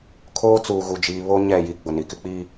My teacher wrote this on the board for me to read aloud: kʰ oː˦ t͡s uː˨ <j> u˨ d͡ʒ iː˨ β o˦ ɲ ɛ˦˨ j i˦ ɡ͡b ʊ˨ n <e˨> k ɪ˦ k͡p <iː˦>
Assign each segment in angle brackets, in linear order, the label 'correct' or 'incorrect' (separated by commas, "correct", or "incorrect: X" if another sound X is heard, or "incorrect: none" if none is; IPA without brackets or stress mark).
incorrect: ɣ, incorrect: i˨, correct